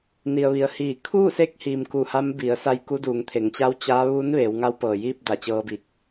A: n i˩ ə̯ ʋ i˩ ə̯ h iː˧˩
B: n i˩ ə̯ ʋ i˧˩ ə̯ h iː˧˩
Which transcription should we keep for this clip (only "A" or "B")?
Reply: A